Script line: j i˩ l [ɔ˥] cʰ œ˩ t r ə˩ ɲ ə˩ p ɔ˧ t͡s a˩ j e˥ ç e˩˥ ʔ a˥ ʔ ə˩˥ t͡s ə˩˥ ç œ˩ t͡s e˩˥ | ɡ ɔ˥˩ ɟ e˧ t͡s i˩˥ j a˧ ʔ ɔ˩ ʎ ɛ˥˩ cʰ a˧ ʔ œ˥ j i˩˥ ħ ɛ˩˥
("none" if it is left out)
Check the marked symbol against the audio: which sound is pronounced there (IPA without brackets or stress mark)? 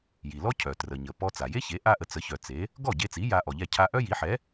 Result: ɔ˥